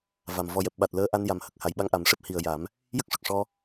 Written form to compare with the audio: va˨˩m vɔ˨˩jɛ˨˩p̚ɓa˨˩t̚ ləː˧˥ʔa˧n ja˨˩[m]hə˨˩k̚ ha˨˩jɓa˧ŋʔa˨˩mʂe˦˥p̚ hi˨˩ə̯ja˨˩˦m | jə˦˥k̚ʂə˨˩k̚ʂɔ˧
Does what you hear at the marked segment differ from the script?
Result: no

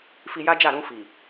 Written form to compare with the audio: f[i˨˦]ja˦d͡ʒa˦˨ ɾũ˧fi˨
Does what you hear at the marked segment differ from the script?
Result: yes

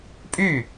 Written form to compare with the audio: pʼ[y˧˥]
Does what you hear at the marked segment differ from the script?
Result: yes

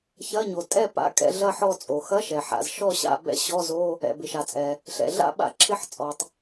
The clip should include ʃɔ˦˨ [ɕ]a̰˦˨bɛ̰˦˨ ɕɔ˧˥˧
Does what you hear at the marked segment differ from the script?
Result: no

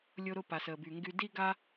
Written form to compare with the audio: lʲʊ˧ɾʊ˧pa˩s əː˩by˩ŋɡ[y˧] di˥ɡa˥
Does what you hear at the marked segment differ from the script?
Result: no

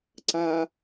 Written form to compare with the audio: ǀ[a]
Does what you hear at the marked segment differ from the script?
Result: no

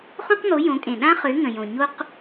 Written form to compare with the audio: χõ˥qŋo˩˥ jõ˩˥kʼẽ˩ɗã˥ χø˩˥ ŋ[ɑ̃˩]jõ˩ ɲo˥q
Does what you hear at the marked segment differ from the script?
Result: yes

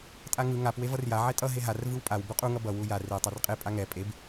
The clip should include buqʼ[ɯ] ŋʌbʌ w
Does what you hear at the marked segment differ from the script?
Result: yes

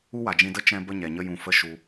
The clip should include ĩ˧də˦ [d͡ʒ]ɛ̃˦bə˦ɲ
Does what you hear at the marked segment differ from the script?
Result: yes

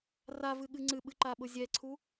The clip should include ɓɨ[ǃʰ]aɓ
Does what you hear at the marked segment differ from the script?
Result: yes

